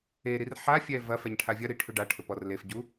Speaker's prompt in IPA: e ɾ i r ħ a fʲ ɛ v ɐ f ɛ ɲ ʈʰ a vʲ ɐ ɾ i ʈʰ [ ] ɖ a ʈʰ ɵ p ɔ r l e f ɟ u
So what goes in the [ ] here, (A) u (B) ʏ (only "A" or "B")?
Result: B